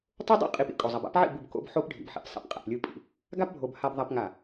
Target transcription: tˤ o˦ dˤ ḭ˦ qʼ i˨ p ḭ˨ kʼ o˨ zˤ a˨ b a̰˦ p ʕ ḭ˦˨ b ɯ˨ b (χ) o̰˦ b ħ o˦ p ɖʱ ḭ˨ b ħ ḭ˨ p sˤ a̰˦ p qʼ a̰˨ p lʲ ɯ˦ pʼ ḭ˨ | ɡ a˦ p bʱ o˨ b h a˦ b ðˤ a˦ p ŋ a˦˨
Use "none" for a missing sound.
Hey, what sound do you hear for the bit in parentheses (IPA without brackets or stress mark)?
k